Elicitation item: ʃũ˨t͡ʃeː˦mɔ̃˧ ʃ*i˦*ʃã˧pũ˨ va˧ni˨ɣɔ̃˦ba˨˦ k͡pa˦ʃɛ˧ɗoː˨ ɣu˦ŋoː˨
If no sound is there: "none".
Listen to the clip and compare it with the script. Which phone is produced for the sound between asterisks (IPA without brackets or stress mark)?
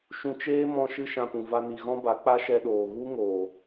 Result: ɨ˦